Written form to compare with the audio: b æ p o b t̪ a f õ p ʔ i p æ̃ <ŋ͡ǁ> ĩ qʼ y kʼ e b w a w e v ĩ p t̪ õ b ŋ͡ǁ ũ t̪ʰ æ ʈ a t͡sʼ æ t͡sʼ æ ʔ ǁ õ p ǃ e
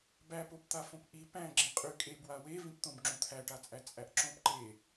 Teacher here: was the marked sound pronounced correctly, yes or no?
no